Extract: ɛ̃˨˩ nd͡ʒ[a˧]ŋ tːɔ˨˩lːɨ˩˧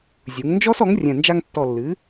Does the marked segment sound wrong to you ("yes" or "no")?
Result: no